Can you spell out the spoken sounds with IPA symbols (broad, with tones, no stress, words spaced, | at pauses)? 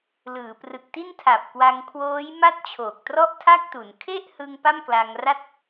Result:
lɯː˩˦prɯ˨˩k̚ ti˥˩ntʰa˨˩p̚kwa˧ŋ kʰwoː˦˥jma˥˩t̚t͡ɕʰoː˨˩k̚ trɔ˥˩ʔtʰa˥˩k̚tu˩˦n kʰe˥˩ʔhɯ˧ŋ pa˥˩mkla˧ŋra˥˩t̚